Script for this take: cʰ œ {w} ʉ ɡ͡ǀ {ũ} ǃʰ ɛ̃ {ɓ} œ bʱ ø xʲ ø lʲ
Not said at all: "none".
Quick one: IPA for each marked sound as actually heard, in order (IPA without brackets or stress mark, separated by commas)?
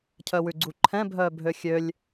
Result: w, u, bʱ